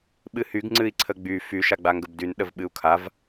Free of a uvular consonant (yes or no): yes